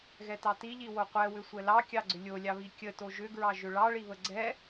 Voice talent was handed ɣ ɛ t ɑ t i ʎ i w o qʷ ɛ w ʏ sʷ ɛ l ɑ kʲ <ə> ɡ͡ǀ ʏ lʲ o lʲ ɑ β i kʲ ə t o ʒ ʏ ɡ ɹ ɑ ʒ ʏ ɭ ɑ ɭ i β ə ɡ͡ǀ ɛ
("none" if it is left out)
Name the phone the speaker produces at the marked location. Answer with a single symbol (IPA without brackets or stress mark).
ɑ